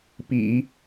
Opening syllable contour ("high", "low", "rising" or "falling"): low